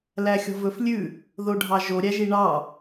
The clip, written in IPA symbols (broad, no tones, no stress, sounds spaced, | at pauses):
l æ xʲ ɔ̤ v ɵ f lʲ ʉ | ð o ɖʱ ɑ ʒ o ɾʲ æ ʒ i ɳ ɑ